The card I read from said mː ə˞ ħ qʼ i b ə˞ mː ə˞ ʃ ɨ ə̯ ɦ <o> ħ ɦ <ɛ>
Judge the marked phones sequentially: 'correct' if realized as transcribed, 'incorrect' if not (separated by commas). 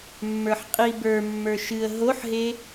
correct, incorrect